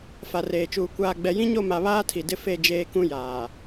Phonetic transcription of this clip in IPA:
f a˨ r eː˨ t͡ʃ uː˨ kʷ aː˨ ɡ͡b ɛ˨ j ĩ˦ ɲ o˦˨ m a˨ β aː˦ tʰ i˨ d ɪ˦ f e˦˨ d͡ʒ eː˦ k ũ˦ j aː˨

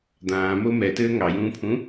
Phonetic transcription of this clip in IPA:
d̪ ãː m o m ɛ t ɘː ŋ ɑ j ũː pʰ ũ

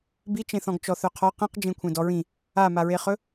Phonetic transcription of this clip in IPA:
b i t͡ʃ ẽ θ ɔ̃ ɡ t͡ʃ ɔ θ œ qʰ ɔ q ĩ q d͡ʒ ẽ kʷʰ ẽ d ɔ ɹ ĩ | a m a ɹ e χ ɵ

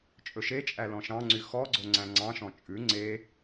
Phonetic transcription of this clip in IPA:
t͡ʃʼ ɵ ʃ e t͡ʃʼ æ l ɔ̃ ʃ ɑ̃ ŋ͡ǀ y x ɔ ɡ͡ǀ o ŋ͡ǀ æ̃ ŋ͡ǀ ɑ̃ ʃ ɔ̃ t͡ʃʼ ʉ ŋ͡ǀ e

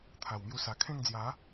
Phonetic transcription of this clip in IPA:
t̪ʰ a˨˩ w m j u˧ s a˨˩ kʰ ẽ˥˧ ŋ d͡z j a˨˦

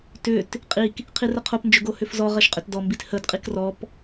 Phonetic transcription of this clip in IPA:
t ʏ t | qʼ i k | qʰ i r ə qʰ o p n d͡ʒ ʏ ɡ o h ʏ f z ɔ ʁ ɐ ʃ qʼ ʏ t d ɔ m b i t h ə d qʼ i k r ɔ p

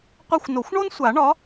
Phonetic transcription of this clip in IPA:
qʷ ɛ˦˨ xʷ n o˨˩˦ xʷ ɳ o˥ n sʷ a˨˩˦ ɳ ɒ˨˥

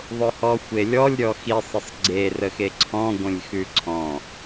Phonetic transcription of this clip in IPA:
ðˤ ʊ h ɔ xʷ e lʲ ɔ lʲ ɾʲ ɔ x i sˤ ə sˤ ɡ͡ǀ e r ə x e ǀʰ ɔ̃ ɡʷ ə̃ lʲ x ʉ ǀʰ ɔ̃

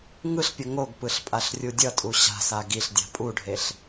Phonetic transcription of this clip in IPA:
ŋ ɯ ɬ pʲ ʌ ŋ o ɡ p ɯ ɬ pʼ a ɬ rʲ u dʲ ʌ tʼ u ɕ a̤ s a ɡ i ɬ dʲ a̤ pʼ u ɖʱ e ɬ

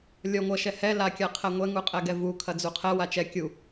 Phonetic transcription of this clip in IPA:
lʲ ɔ ŋʷ ɐ ʃ ɛ h ɛ l a kʲ a qʰ ɛ ŋʷ ɛ ŋ u qʼ ɛ ɡ ɛ v u kʰ ɐ d͡z u qʰ ɛ w a t͡ʃ ɛ kʲ u

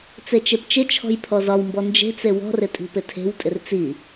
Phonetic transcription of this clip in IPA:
t͡s e t͡ʃ e p t͡ʃ ɪ t͡ʃʰ ɔ̤ j pʰ ɔ z ɒ w m b ɔ n d͡ʒ e̤ t͡s e w ɔ̤ r ɪ tʼ i̤ p ɪ tʰ e̤ w tʼ ɪ r t͡s i

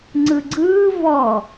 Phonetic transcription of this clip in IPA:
ŋ͡ǀ ɯ ɡ͡ǀ ɯː v ɔ

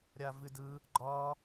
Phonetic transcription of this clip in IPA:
ɾʲ a v ɨ d ɯ | ɡ͡ǃ ɒ

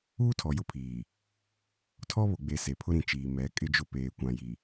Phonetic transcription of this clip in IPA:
uː˦ tʰ ɔ˨ j ʊ˦ pʰ iː˨ | tʰ ɔ˦ β o˨ ɡ͡b e˨ s e˨ pʰ ʊ˦ ɾ ĩ˨ t͡ʃ iː˨ m ɛ˨˦ kʼ ɪ˦ d͡ʒ ʊ˦ p eː˨ kʷ ã˨ j i˨

